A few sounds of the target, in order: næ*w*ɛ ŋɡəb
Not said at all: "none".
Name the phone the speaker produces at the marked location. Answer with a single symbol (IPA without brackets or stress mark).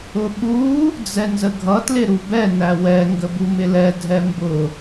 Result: w